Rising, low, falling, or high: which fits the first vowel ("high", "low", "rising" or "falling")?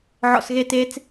low